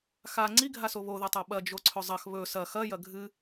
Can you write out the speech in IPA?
xa ŋ͡ǀiɡʱaso βoðɐtˤa ɓɐd͡ʒo ǀʰɵzˤɐx βɵ sɐ xɐjɐ ɡʱɨ

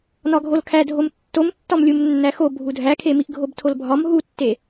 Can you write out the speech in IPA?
nɒɡʱolkʰædʱom tːomtːɒmlʲum nːæxo bʱudʱækʰe miʔɡʱobtʰolbʱɒm ɦutːe

